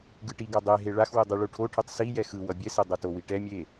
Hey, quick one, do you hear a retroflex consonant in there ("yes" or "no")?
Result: yes